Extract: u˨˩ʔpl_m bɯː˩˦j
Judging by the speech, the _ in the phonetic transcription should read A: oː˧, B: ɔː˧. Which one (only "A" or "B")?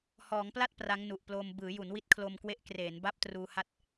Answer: A